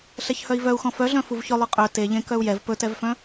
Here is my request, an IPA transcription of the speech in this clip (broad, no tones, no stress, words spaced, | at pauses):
ɬɛçhœi̯vœu̯xɔ̃ fœɮœ̃ fuvçɵ lˠʏqʼœ teʎẽ kœu̯jɛv pɵtɛvfœ̃